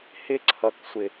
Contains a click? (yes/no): yes